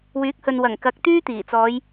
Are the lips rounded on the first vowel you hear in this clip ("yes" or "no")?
yes